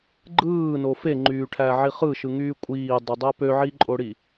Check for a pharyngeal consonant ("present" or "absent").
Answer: present